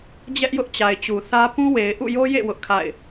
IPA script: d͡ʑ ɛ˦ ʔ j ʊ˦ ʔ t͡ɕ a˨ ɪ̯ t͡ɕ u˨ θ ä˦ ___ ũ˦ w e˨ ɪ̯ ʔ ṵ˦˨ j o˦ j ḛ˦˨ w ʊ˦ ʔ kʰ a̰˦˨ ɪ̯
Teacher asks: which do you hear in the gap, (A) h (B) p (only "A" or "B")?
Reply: B